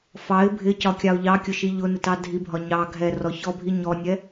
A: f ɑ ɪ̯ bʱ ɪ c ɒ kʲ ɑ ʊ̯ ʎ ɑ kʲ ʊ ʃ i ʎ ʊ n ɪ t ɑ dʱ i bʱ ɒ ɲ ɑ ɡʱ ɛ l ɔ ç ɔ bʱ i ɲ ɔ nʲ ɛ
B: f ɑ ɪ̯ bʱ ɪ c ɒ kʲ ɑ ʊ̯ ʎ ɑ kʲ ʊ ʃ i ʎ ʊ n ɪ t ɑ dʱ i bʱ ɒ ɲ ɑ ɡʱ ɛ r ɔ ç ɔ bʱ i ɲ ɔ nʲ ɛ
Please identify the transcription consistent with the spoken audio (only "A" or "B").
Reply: B